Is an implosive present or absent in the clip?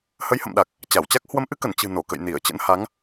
present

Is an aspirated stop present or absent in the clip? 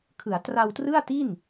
present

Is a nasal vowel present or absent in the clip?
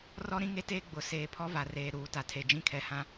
present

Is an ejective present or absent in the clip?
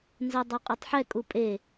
present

